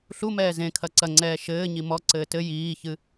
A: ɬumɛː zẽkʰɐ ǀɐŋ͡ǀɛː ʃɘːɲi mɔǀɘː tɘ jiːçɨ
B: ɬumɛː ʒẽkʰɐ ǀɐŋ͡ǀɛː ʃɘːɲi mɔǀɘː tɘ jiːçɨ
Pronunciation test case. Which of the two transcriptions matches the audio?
A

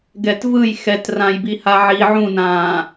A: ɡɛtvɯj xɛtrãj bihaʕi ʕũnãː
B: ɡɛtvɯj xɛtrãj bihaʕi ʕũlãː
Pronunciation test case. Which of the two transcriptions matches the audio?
A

